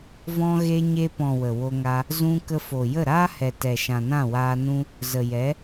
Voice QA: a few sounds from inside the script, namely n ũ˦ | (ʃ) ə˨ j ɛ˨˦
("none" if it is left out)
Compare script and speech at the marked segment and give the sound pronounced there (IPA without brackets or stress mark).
z